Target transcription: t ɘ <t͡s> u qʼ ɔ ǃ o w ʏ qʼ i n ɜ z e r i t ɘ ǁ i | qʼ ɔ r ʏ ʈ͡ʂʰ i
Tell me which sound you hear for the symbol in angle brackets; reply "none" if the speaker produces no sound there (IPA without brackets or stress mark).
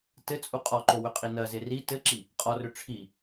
t͡sʼ